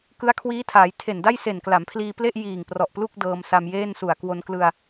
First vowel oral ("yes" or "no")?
yes